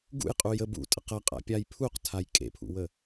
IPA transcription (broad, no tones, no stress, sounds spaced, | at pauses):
ɡ ṵ j qʼ u j ə b ṵ tʼ ə q ɐ qʼ a̰ pʲ a j pʰ u q tʰ a j kʼ ḛ pʰ ṵ w ə